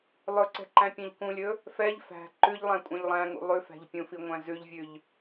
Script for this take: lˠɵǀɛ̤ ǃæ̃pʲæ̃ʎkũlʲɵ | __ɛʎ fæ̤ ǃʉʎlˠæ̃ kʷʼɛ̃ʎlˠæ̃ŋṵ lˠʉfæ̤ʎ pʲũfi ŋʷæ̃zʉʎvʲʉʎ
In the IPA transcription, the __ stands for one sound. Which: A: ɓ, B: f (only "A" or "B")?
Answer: B